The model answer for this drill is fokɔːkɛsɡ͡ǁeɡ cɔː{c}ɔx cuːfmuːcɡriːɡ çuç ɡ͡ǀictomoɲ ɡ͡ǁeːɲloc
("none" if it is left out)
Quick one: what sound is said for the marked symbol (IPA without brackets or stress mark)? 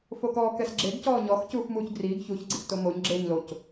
ɲ